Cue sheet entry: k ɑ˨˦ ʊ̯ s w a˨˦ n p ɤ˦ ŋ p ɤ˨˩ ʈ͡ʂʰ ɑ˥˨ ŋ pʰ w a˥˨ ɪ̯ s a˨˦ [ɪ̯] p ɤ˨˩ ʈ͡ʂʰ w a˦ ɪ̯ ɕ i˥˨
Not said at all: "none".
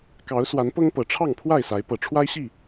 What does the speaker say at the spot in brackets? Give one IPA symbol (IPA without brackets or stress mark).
ɪ̯